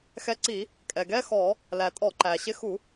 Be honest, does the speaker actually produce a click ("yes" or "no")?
yes